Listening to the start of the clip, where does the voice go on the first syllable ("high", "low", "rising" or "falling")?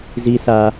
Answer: high